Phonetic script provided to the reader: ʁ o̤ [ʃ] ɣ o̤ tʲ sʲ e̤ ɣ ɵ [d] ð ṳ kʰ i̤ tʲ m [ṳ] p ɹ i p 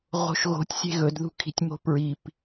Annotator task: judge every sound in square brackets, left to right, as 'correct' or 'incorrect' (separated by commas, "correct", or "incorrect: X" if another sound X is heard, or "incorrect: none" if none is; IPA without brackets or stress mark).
correct, correct, incorrect: o̤